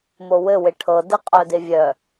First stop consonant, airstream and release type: aspirated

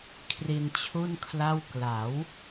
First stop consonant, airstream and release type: aspirated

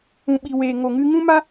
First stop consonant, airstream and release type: implosive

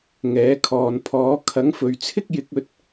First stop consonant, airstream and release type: aspirated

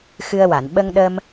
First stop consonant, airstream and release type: implosive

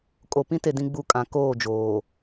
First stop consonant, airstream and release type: ejective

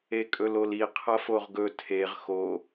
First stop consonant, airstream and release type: ejective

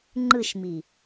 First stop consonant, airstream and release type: click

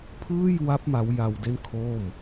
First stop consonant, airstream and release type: aspirated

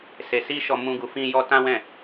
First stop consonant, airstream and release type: plain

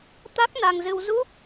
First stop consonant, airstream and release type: plain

